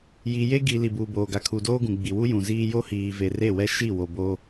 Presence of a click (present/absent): absent